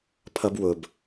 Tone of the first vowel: high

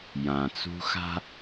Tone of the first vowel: low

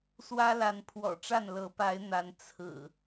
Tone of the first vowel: high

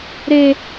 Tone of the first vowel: high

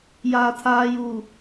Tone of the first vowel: low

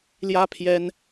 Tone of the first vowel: high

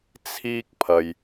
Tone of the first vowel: high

